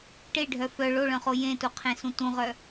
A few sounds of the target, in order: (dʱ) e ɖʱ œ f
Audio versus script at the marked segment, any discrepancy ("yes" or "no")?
yes